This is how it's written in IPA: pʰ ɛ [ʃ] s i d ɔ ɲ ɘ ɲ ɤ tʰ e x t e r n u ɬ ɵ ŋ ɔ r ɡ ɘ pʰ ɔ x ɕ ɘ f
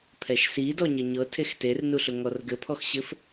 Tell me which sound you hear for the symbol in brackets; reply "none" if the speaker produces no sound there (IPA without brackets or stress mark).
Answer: ʃ